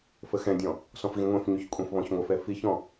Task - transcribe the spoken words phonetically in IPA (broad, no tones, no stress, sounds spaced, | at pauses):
f ə x ɛ̃ dʲ ɔ̃ | s ɔ̃ f ɣ ĩ ŋʷ ɛ̃ f ɲ y ç kʷʼ ɛ̃ f β ɔ̃ ç ŋʷ ə f ɛ f i ç ɔ̃